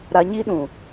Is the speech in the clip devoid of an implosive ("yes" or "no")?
no